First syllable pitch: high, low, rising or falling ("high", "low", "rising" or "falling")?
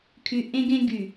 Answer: low